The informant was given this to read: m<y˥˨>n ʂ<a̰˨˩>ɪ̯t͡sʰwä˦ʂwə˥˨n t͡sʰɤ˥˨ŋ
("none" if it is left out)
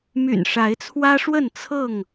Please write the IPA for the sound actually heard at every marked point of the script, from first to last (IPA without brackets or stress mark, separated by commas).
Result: y̰˨˩, a˨˦